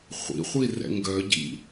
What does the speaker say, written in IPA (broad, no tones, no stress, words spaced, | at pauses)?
χʷḭχʷi rɛ̰ŋɡœɟḭ